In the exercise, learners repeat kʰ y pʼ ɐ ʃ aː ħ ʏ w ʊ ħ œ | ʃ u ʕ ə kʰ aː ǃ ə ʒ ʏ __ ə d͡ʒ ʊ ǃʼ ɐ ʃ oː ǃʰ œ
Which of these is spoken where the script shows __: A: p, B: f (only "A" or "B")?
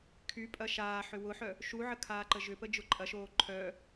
A